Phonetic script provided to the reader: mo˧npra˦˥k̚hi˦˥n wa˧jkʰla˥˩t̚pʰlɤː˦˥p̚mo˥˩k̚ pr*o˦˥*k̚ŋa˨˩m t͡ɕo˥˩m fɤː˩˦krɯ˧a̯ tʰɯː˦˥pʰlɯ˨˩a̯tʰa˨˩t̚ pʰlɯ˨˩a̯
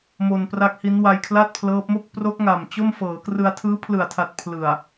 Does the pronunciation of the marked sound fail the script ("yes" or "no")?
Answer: no